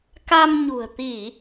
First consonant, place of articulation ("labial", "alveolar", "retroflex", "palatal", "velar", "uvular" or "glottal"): velar